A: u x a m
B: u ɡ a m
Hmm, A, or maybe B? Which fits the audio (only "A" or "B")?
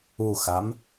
A